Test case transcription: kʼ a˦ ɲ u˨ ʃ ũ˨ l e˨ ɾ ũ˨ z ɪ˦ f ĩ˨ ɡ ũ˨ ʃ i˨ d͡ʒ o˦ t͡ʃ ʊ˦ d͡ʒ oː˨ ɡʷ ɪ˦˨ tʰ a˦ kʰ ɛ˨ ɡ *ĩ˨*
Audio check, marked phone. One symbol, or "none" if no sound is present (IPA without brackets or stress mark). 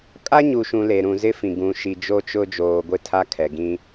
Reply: ĩ˦